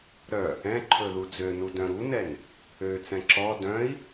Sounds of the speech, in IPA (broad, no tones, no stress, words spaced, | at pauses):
ɾœ | ɛ̃ ǃʰɵðud͡zønu dœ̃ɾunɛn | øt͡sɛ̃ ǁɔ dœ̃i̯